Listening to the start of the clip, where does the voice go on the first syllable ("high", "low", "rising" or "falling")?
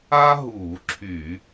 high